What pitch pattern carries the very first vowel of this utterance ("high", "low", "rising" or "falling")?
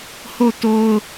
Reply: falling